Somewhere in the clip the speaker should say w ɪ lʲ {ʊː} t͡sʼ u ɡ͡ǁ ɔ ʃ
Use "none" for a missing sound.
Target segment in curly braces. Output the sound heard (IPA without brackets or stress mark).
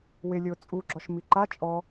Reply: ʊː